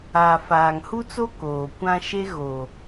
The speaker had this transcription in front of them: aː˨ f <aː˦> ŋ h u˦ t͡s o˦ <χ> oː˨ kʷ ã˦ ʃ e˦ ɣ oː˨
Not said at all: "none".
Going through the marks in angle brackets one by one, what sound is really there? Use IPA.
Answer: aː˨, k

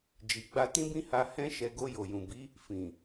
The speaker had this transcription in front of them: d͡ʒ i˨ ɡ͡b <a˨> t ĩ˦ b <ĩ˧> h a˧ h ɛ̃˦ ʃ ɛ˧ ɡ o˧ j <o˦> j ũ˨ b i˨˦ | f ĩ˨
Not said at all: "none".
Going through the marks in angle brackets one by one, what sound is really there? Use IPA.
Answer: a˧, ĩ˦, o˨

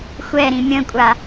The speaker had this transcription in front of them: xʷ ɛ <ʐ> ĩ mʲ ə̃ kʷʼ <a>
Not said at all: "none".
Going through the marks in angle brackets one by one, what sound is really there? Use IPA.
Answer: ɾ, a

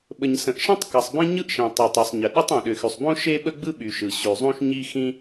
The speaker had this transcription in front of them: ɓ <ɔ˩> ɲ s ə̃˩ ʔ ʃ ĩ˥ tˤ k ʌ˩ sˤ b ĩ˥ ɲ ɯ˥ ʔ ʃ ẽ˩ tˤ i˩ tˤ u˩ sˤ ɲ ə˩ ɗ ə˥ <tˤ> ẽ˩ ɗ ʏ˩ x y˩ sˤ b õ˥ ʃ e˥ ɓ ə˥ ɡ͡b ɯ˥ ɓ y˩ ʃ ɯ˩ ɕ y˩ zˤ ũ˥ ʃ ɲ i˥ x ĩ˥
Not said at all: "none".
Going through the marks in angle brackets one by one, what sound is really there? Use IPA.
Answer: ə˩, tˤ

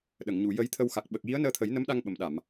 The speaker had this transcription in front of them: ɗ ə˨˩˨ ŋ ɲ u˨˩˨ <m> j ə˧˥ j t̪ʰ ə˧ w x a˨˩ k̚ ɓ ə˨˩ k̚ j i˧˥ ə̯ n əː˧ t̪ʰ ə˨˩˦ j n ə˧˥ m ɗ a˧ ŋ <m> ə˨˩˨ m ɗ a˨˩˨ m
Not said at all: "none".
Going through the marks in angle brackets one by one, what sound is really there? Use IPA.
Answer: none, ɓ

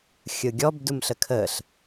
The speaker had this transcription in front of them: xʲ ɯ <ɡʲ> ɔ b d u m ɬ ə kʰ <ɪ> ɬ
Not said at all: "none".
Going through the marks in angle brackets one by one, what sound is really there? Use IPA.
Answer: ɡʲ, ə

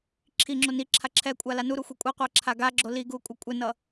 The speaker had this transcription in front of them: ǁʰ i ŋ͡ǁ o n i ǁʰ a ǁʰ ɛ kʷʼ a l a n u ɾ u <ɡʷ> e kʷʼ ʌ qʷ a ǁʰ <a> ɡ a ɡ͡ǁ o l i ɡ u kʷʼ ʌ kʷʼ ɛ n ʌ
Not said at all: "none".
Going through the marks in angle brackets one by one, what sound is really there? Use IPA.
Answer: xʷ, a

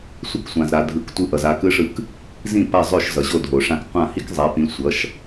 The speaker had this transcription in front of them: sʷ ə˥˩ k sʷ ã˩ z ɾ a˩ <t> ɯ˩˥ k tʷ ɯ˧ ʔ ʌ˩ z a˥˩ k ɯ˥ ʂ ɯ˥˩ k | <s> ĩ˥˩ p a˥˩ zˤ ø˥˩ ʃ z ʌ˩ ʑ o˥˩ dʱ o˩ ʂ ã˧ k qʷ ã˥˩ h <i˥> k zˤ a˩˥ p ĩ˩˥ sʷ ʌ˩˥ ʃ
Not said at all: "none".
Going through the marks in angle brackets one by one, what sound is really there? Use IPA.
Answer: dʱ, z, i˥

